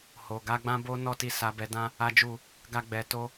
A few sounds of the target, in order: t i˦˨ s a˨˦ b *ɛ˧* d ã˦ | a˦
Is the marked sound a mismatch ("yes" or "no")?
no